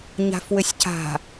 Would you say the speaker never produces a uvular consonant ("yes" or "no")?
yes